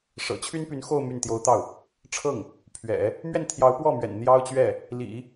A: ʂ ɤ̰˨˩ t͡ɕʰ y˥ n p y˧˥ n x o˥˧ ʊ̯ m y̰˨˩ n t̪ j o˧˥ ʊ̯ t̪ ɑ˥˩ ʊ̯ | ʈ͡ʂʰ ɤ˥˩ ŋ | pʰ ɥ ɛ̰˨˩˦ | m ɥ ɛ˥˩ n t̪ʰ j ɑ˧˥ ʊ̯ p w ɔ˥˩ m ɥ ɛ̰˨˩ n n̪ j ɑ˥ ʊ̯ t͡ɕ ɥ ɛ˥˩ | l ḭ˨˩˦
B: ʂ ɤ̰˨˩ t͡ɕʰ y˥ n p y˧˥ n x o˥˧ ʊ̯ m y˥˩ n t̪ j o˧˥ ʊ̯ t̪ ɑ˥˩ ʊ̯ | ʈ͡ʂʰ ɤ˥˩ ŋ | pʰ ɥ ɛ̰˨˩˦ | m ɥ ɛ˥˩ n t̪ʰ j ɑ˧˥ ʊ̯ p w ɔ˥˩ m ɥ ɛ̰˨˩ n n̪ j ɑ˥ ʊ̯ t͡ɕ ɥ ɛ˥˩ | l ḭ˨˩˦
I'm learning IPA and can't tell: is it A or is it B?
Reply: B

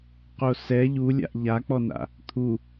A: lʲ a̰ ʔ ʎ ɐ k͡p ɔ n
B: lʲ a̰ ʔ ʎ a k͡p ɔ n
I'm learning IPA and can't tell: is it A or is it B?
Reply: B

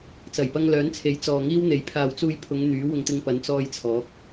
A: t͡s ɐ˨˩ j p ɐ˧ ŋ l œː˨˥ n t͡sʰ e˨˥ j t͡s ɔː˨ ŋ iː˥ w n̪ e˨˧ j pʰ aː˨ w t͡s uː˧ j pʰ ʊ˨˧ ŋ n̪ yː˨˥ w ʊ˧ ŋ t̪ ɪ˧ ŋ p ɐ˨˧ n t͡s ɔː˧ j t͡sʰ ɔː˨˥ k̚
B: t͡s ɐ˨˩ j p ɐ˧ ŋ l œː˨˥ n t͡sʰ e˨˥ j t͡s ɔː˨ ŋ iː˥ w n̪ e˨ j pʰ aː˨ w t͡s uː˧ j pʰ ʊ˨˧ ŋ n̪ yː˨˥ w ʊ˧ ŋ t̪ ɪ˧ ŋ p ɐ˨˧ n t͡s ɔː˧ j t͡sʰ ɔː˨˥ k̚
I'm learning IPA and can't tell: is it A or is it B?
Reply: A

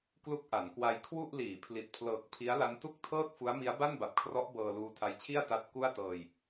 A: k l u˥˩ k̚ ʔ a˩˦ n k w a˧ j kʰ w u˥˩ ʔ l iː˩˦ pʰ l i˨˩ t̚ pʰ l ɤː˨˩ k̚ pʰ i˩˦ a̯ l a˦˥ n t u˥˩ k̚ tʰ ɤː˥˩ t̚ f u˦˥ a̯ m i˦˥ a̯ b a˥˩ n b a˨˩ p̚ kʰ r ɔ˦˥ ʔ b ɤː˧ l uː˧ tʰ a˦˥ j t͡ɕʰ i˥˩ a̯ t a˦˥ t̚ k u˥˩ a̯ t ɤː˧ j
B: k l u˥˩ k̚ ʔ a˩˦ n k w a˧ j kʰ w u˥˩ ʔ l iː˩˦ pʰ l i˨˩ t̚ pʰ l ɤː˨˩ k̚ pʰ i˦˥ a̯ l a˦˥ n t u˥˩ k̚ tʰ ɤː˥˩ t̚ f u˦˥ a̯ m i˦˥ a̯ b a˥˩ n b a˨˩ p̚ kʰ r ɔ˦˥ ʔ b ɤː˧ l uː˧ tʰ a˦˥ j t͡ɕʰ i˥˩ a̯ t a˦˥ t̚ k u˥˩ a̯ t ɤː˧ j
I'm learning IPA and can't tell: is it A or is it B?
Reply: B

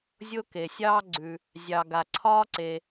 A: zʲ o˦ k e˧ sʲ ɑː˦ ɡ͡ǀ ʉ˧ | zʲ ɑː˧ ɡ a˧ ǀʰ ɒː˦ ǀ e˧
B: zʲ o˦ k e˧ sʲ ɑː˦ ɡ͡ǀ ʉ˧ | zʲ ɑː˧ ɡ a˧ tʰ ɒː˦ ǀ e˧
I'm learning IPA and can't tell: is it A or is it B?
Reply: A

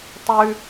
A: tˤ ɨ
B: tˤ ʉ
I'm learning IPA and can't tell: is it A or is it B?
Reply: B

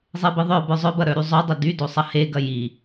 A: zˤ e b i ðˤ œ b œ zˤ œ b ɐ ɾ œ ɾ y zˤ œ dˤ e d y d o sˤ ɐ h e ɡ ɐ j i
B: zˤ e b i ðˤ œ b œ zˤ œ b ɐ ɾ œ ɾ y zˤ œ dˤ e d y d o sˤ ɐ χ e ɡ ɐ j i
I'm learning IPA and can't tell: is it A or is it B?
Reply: A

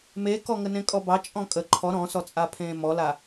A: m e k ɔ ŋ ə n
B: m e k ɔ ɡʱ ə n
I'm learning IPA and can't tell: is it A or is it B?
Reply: A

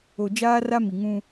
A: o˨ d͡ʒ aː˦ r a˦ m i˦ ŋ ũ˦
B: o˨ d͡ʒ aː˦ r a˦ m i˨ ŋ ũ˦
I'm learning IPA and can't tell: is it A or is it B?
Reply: B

